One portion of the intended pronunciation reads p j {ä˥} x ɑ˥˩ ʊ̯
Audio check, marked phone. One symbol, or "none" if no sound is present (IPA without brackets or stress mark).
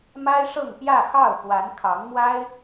ä˥˧